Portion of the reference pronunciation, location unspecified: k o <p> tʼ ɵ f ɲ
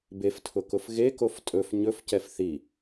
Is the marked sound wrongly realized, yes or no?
yes